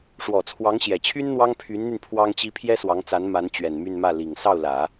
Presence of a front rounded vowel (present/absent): present